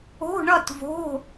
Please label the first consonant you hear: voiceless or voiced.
voiced